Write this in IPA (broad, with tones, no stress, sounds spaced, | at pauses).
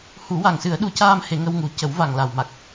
h u˨˩˦ w a˨˩ ŋ s ɨ˨˩˦ ə̯ ɗ u˨˩˦ c aː˧ m h e˨˩˦ ŋ ə˧ w ŋ u˨˩˦ c ə˨˩˦ w v a˨˩ ŋ l a˨˩ w m a˨˩ k̚